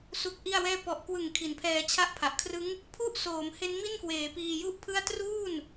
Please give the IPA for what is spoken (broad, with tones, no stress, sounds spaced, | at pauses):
s u˦˥ k̚ ʔ i˥˩ a̯ w ɛː˥˩ p ɔ˨˩ ʔ k w ɯ˨˩ ŋ kʰ i˩˦ n pʰ ɛː˧ t͡ɕʰ a˥˩ ʔ pʰ a˨˩ ʔ kʰ r ɯ˦˥ ŋ | pʰ u˦˥ ʔ s oː˩˦ m h e˦˥ n m i˥˩ n k w eː˩˦ p iː˧ j u˥˩ ʔ pʰ ɯ˥˩ a̯ t r uː˥˩ n